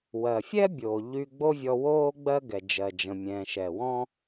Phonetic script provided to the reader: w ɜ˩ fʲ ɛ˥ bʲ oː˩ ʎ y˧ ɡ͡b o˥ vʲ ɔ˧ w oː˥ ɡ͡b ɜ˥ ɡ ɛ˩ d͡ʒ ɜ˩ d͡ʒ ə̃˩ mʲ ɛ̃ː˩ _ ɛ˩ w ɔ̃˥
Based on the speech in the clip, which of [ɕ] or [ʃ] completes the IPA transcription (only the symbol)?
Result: ʃ